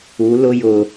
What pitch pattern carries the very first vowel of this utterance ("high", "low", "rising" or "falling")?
rising